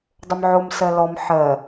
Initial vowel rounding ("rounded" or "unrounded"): rounded